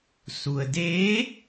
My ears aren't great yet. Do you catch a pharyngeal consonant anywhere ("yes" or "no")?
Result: no